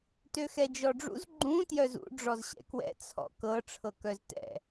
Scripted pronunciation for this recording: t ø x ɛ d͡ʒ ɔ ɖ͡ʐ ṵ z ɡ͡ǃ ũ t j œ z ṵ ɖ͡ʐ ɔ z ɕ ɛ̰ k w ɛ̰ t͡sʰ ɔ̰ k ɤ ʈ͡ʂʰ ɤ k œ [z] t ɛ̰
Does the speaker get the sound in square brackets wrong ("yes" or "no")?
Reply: no